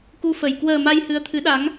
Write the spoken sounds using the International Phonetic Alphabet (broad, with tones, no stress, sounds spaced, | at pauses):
k u˧ f ə˨˩ j k w əː˨˩ m a˧ j h ɨ˨˦ ə̯ t̪ʰ ɨ˨˦ ɗ a˨˦ ŋ